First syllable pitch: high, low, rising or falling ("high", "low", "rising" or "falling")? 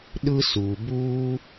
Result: high